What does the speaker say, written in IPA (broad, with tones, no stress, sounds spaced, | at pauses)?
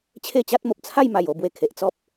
t͡ɕʰ e˥˧ t͡ɕ a˦ t̚ m o˨ p̚ t͡sʰ a˥˧ j m a˨˩ j o˥˧ b w e˨˩ kʰ e˨ ʔ t͡s ɔ˦ p̚